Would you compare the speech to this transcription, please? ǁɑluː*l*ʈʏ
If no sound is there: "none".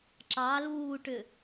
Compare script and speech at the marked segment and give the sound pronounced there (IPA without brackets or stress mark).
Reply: none